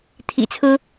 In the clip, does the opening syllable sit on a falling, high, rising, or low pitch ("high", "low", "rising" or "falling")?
low